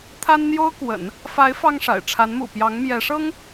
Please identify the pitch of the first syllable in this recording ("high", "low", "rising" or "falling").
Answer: high